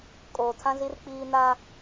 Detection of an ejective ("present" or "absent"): present